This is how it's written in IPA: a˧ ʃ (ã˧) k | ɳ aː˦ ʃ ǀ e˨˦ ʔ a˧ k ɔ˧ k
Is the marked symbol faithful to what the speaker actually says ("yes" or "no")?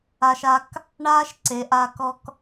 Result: no